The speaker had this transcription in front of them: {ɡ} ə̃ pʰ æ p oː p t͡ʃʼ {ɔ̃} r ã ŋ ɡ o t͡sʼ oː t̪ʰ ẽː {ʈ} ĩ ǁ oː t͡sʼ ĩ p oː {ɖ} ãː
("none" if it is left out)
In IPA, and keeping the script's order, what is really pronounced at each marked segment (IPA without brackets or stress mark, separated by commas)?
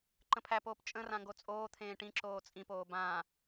ǃ, ə̃, ʈ, b